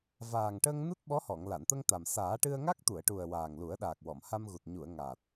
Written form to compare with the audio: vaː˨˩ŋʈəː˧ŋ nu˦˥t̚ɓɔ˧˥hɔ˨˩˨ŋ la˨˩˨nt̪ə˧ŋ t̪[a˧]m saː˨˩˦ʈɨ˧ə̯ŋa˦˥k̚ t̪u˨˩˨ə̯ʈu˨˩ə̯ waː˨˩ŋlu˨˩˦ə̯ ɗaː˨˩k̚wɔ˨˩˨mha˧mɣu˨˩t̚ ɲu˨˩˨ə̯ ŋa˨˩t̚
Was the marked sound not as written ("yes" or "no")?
yes